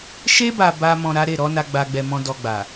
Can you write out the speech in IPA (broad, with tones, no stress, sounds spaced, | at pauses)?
ʃ e˧ b a˨ b a˧ m ɔ̃˨ ɾ a˨˦ ɾ e˦˨ ɾ ɔ˨˦ n a˧ ɡ͡b a˨ ɡ͡b ɛ˧ m ɔ̃˦ d ɔ˧ ɡ͡b a˨